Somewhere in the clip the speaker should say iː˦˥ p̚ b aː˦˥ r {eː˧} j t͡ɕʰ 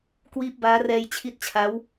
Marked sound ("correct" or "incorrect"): incorrect